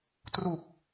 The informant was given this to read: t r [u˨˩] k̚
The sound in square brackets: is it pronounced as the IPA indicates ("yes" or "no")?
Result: yes